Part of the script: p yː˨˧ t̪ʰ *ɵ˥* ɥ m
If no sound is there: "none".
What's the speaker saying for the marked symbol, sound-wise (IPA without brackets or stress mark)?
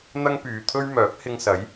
ɵ˥